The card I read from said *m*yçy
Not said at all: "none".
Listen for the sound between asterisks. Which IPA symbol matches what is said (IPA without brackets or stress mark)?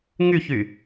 ŋ